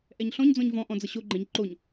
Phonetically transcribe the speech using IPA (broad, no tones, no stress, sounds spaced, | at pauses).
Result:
ʔ ɛ ɲ ɬ ɔ̃ ɲ d͡z ɔ̃ ɲ v ɔ̃ ʔ ɔ̃ d͡z ʌ ɕ o ɡ͡ǃ ɛ̃ ɲ ǃ o ɲ